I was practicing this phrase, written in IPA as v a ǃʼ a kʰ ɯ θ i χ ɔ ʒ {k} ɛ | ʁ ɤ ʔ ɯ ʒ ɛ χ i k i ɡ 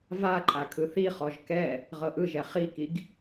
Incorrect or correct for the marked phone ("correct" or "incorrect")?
correct